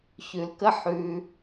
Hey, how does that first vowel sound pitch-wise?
low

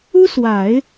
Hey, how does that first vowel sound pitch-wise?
high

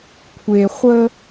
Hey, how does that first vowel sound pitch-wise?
low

